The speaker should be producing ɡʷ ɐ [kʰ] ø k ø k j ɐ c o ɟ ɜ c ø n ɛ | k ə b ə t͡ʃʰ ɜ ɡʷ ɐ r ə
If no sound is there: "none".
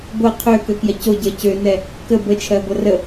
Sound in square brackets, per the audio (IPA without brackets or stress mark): qʰ